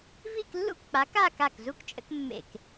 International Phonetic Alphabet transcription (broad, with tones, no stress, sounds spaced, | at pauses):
v i˥˧ k lː ṵ˥ k k͡p a˨˥ k a˥˧ k a˥˩ k z u˥ k t͡ʃʼ ə̰˥ k mː ḛ˥˩ k